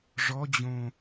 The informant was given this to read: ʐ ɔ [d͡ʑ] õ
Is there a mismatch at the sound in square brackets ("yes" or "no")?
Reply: no